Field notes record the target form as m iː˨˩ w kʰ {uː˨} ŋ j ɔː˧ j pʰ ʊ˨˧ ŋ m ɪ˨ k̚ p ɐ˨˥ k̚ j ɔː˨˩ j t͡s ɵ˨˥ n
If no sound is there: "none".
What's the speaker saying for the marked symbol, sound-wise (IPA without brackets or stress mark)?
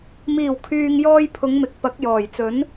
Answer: yː˨